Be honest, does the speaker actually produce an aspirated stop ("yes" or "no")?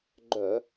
no